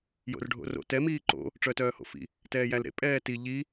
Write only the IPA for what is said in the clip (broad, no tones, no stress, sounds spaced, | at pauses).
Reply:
j o̰ r ɖʱ o̰ r o̰ t ɛ m iː ǃ o̰ | ʈ͡ʂ œ t œː h o̰ f ḭ | t ɛː j æ l ɾ ḛ pʼ ɛː t i ʎ i